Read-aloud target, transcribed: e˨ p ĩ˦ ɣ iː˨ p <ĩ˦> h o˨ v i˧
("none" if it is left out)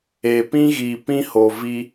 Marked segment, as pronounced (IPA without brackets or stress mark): ĩ˦